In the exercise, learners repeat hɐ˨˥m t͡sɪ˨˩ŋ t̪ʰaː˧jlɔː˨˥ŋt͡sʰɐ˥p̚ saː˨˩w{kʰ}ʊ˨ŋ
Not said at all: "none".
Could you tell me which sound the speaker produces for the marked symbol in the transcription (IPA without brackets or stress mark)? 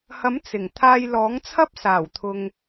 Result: t̪ʰ